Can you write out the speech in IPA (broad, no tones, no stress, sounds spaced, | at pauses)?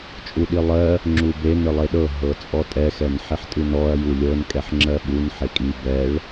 t͡ʃʼ u ɗ i lˠ ɜ | ŋ͡ǁ u b e n ɨ lˠ e ɗ ɤ ɦ ɤ t͡sʼ ɔ tʼ ɛ x ɛ n ħ i ħ tʼ ɨ n ɔ ɐ̯ j u lʲ ɤ n kʼ ɛ ħ ŋ͡ǁ ɜ ɓ u n ħ e kʼ i b ɛ ɭ